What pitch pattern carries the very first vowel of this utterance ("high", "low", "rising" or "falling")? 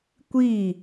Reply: falling